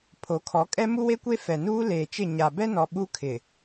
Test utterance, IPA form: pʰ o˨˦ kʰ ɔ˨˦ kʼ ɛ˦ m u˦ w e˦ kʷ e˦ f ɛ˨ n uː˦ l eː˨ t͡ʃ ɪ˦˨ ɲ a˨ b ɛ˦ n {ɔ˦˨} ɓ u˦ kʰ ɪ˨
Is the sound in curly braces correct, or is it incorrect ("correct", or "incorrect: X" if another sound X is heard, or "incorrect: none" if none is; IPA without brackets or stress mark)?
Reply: incorrect: ɔ˨